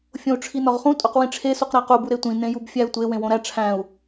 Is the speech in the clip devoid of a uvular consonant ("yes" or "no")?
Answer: no